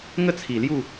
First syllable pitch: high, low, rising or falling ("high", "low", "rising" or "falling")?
falling